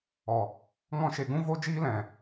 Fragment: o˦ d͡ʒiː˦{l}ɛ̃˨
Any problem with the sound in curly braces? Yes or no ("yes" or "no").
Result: no